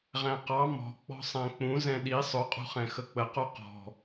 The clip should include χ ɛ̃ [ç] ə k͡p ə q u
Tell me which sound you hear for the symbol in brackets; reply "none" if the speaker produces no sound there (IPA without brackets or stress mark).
x